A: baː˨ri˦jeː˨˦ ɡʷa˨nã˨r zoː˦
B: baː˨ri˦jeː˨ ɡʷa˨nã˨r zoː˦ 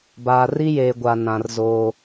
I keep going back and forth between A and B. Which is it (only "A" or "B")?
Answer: B